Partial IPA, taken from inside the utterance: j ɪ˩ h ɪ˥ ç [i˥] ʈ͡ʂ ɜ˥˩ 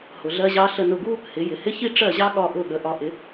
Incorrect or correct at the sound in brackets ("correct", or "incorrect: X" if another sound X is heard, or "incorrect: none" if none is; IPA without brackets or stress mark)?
correct